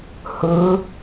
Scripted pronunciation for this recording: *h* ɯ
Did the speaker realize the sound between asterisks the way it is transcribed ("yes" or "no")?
yes